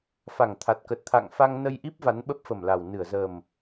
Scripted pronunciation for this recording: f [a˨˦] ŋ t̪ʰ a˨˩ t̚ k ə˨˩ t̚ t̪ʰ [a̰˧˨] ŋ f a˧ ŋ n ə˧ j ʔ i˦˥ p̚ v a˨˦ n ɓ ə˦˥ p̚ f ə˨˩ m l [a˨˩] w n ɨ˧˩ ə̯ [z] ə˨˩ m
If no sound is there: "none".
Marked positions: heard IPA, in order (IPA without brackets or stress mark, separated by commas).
a˨˩, a̰˧˨, a˨˩, z